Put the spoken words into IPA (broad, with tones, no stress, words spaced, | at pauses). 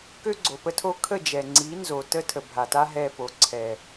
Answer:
kø˦ɡ͡ǀo˨pə˦tʰo˦ kʰə˦˨d͡ʒɛ˨ ŋ͡ǀi˨˦ nzo˨tə˦ tʰə˨bʱa˨ta˦ ɦɛ˦˨ po˨ ǀʰɛ˨